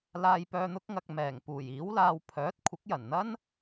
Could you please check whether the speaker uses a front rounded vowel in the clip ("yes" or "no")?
yes